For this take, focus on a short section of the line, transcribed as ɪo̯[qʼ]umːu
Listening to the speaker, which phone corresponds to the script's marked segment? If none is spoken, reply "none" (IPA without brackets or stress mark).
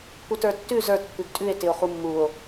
χ